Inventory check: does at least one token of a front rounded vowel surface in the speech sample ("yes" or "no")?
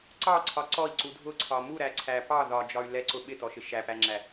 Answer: yes